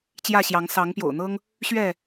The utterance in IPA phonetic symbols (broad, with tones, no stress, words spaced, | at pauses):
t͡ɕjä˥˨ɕjɑ˨˦ŋ sɑ˨˦ŋpjo̰˨˩ʊ̯n̪ɤ˦ŋ | ɕɥɛ˥˨